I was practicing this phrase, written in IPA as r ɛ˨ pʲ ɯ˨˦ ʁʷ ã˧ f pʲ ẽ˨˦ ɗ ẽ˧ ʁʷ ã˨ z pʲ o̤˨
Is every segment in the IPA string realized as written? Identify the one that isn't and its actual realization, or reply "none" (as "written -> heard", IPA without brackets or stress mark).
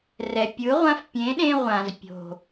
none